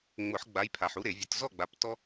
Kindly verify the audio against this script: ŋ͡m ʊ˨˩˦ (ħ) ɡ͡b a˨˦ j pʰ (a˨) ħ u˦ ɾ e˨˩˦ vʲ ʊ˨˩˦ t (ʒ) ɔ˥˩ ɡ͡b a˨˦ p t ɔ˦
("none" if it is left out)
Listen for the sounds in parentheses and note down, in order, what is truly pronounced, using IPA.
ħ, a˨, z

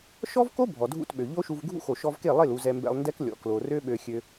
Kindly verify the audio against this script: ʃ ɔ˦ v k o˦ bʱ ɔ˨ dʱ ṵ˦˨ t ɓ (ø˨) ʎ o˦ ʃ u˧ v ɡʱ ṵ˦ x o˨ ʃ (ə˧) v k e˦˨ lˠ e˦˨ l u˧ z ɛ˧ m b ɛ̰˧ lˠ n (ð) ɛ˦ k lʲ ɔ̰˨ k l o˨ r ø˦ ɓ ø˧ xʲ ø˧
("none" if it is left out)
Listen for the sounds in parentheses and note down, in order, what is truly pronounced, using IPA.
ø˨, ɔ˧, d

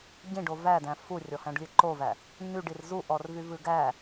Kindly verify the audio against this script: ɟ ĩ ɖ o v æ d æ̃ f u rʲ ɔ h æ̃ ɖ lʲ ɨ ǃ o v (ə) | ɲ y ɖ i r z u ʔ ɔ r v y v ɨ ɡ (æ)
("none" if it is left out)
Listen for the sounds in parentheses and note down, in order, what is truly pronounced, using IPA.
æ, æ

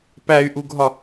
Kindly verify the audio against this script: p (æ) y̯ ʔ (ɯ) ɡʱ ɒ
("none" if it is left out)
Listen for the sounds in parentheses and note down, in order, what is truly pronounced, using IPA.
æ, u

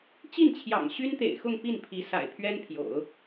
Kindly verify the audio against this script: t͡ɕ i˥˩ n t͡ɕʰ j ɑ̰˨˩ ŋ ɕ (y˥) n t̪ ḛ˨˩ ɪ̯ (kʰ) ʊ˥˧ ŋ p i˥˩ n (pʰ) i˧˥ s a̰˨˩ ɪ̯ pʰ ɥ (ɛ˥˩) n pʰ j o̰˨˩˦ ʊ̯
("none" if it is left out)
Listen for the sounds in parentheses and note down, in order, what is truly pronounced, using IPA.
y˥, x, pʰ, ɛ˥

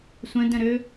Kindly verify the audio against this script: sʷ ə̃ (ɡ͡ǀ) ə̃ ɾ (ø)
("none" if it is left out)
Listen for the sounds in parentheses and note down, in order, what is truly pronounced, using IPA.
d, ø

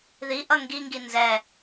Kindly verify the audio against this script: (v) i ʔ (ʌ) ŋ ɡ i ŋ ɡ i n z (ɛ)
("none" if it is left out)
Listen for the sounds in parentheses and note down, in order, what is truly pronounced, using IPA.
ð, ʌ, ɛ

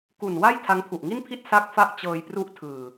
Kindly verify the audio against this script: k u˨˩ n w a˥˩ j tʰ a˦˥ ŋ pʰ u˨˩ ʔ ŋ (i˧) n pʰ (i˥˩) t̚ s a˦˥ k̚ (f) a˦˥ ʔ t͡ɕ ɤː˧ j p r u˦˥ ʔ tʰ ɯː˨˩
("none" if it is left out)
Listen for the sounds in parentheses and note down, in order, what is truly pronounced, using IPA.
i˥˩, i˥˩, f

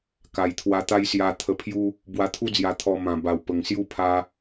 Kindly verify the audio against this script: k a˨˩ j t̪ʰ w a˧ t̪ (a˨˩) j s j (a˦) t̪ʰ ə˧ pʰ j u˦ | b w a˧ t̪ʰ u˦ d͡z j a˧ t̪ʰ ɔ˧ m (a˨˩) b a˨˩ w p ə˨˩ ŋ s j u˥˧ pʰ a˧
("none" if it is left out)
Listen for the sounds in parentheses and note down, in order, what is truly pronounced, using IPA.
a˦, a˧, ã˨˩

